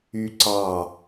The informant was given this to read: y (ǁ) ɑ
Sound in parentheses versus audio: incorrect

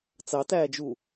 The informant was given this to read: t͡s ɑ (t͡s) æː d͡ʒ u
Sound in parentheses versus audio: incorrect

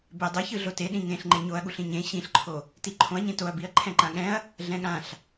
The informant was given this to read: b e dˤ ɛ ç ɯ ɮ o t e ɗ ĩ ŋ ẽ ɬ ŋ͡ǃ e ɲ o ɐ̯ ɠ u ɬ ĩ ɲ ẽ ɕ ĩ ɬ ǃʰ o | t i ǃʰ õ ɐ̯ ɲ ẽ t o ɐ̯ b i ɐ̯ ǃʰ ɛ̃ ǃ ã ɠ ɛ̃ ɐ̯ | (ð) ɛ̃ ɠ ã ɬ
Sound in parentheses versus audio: incorrect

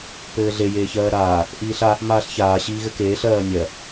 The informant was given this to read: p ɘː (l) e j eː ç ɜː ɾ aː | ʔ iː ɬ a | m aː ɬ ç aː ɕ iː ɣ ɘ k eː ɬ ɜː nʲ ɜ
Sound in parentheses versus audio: incorrect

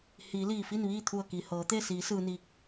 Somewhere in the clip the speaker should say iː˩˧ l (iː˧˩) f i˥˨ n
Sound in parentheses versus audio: correct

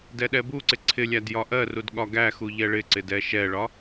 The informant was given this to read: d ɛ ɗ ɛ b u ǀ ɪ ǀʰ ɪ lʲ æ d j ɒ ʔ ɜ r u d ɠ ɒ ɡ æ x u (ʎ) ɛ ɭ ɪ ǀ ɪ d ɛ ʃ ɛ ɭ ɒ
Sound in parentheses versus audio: correct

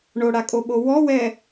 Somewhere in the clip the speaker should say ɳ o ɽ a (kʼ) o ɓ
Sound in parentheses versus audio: correct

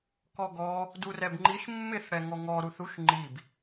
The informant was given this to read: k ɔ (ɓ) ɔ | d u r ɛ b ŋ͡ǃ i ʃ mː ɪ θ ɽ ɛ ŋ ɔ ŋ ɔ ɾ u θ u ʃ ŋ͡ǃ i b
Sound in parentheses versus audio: incorrect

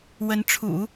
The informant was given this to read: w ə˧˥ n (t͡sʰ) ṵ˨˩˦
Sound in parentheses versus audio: incorrect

